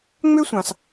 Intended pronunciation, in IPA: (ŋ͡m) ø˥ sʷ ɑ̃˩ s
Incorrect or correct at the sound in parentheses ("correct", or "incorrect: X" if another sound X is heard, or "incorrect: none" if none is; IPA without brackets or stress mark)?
correct